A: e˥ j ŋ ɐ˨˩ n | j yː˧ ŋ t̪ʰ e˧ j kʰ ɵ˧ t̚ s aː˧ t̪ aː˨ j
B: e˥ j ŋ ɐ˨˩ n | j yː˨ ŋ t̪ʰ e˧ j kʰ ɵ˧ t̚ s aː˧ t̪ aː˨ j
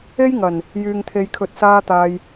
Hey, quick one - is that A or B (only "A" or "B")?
A